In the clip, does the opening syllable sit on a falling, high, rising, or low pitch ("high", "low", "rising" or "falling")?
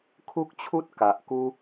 high